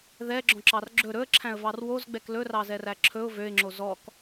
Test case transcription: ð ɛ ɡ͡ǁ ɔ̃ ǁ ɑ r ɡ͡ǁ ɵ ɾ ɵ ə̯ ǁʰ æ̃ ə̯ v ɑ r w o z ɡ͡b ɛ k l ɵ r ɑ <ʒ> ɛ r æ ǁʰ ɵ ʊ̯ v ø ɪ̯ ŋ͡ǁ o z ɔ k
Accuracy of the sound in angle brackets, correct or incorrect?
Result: incorrect